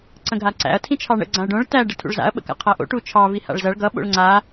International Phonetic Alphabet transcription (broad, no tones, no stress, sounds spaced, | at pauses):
ǀ ə̃ ɡʱ a ǀ æ̰ ɐ̯ tʰ ĩ t͡ʃʰ ɑ ɳ ə̰ ɡ͡ǀ ã ɐ̯ ɖ õ ɭ t æ ɖ ə tʰ ṵ ɭ z a̰ ɐ̯ ɓ ə̰ k a̰ qʰ æ ʔ o̰ ʈ u t͡ʃʰ ɑ v i h a̰ ɭ z ʌ ɭ ɡ ʌ ɓ o̰ ɭ ŋ͡ǀ a